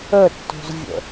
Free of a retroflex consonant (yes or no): yes